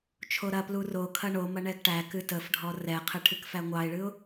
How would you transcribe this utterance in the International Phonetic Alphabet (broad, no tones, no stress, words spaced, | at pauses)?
t͡ʃʰoɾɐplu rokʰɐ ɳomɐ ɳɛɡʈækɨ təfɖʱɔ rɛqʰɨ ʈʰɨkfæŋʷɑɪ̯ɭɨʊ̯